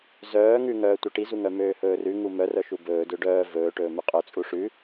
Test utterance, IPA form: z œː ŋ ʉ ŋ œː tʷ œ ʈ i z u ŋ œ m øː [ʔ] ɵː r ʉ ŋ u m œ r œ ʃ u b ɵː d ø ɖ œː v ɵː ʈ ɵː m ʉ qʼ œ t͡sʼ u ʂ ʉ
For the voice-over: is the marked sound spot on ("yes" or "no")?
no